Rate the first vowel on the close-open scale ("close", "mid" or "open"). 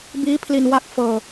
close